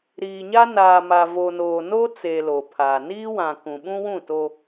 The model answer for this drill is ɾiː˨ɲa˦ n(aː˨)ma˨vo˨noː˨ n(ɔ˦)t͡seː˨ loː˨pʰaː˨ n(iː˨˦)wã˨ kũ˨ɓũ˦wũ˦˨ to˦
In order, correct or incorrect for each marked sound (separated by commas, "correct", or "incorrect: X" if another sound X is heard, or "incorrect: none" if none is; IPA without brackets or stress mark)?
correct, incorrect: o˦, incorrect: iː˦